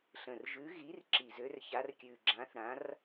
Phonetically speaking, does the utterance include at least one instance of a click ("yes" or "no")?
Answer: yes